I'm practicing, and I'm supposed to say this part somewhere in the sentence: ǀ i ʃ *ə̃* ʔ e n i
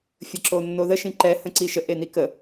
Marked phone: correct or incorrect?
incorrect